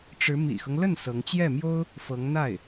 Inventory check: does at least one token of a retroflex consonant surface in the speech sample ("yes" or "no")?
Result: yes